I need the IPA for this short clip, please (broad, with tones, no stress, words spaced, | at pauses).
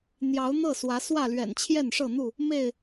n̪jɑ˨˦ʊ̯n̪ɤ˥˨swä˨˦ swä˥˨lɥɛ̰˨˩n t͡ɕʰjɛ˥˨nʂɤ˥˨n̪u˥˨ | me˥˨ɪ̯